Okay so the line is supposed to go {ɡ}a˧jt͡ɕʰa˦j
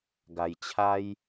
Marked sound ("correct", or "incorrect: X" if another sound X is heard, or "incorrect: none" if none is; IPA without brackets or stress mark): correct